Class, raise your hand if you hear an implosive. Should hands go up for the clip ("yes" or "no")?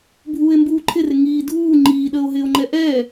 yes